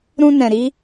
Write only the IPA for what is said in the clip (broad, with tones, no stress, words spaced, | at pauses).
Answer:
ɾũ˦nɛ̃˧ɾi˦